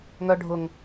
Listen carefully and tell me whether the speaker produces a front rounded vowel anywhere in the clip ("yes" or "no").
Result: yes